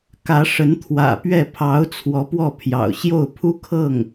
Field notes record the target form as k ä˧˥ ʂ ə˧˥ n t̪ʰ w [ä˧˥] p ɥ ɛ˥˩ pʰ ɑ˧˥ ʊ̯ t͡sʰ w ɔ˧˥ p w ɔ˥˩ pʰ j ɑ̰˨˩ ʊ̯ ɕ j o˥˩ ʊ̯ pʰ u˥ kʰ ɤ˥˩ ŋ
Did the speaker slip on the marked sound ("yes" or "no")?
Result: yes